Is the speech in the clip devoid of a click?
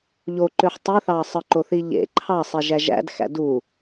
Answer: no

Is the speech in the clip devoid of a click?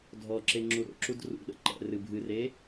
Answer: no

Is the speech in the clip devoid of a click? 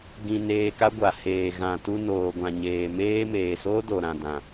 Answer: yes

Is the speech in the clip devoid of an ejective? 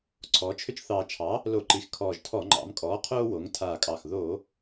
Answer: no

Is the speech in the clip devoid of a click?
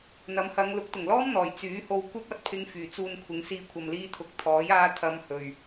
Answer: yes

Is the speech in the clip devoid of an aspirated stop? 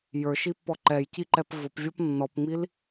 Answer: yes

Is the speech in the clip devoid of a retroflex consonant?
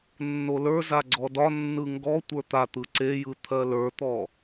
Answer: yes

